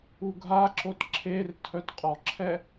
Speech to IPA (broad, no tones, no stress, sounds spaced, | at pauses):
u ɡʱ a ǁ o t ǁʰ e r tʰ œ t qʼ ɔ ǁʰ ɛ